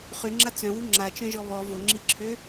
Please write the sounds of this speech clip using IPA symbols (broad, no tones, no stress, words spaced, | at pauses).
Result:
χyŋ͡ǁa t͡sœ̃wu ŋ͡ǁat͡ʃœ̃ʒɔ βɔ voŋ͡ǁiǁʰø